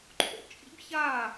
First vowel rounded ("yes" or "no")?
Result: yes